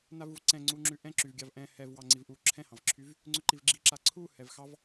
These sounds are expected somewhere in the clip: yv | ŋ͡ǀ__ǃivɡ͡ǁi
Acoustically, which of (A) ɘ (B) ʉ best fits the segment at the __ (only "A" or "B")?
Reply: B